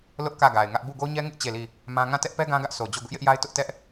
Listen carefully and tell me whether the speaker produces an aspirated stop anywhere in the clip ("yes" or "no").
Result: no